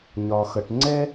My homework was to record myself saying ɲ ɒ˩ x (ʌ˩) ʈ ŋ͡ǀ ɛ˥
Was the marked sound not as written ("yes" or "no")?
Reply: no